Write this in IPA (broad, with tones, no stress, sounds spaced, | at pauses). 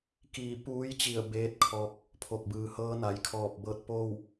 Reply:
k iː˧˩ p uː˧˥ j t͡ɕ i˧˩ ə̯ b eː˧˥ t̚ kʰ ɔː˧ k̚ | pʰ o˧˩ k̚ b ɯː˩ h ɤː˧˥ n a˩ j kʰ ɔː˧˩ p̚ b ɤː˧ t̚ p oː˥˨ w